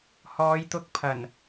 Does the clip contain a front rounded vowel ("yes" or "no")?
no